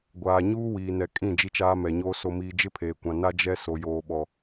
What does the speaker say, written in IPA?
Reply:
ɡʷ aː˨ ɲ uː˦ w iː˨ n ɛ˨ kʼ ĩ˦˨ d͡ʒ i˦ t͡ʃ aː˦ m ɛ˨ ɲ oː˦ s o˨ m iː˨ d͡ʒ ɪ˦ pʰ eː˨ kʷ ã˨ n a˦ d͡ʒ ɛ˦ s o˨ j oː˨ ɓ ɔ˨

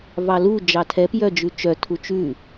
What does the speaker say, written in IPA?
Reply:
v ɑ l u d͡ʒ ɑ tʰ ɛ p j œ d͡ʒ ʉ t͡ʃ œ tʰ u t͡ʃ ʉ

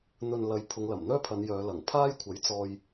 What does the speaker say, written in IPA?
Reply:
n̪ ɵ˨ n l ɐ˨˧ j pʰ ʊ˨˧ ŋ l ɐ˨˩ m n̪ œː˥ pʰ ɐ˨˧ n j œː˨˧ l ɐ˨˩ ŋ pʰ aː˥ j kʷʰ ɐ˨˥ j t͡s ɔː˧ j

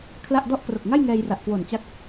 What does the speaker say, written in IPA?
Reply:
kʰ l a˥˩ ʔ d ɔ˥˩ ʔ k r o˨˩ k̚ ŋ a˥˩ j ŋ ɛː˧ j r a˨˩ ʔ k w o˨˩ n t͡ɕ a˦˥ k̚

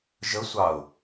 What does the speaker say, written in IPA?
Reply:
ʒ ə sʷ ɑ ʊ̯

